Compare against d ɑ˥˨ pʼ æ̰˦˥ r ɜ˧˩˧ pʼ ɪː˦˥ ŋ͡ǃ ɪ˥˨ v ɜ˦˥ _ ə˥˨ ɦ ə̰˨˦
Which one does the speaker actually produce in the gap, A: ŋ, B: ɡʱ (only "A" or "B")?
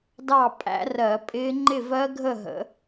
B